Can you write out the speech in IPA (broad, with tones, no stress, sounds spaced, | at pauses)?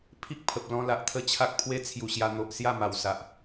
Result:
pʰ i˦ k̚ pʰ ə˨ p̚ l ɔ̃˧ l a˨ ʔ t̪ʰ ə˥˧ t͡ɕʰ a˦ k̚ pʰ w e˦ t͡sʰ j u˨˩ ɕ j a˧ n̪ o˨ ʔ s j a˥˧ m a˨˩ w s a˨ ʔ